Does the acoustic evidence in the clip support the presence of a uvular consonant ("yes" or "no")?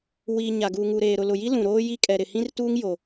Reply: no